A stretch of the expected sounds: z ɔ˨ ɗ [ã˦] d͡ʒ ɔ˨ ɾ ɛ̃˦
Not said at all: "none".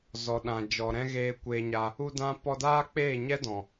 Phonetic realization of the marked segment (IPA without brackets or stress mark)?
ã˨